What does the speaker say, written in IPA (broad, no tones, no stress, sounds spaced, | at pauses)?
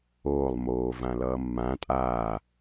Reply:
oː lˠ m oː v ã l ʌː mː ã tʼ aː